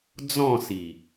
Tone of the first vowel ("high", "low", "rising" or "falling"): falling